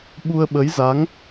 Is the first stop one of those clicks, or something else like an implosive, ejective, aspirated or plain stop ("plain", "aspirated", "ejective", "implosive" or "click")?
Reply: implosive